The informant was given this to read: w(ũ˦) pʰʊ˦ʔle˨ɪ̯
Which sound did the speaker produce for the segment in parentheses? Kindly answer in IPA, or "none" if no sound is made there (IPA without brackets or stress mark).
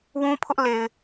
ũ˦